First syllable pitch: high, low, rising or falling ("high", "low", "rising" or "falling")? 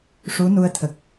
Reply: rising